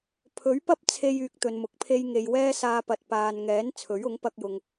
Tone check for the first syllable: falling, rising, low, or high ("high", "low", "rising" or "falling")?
rising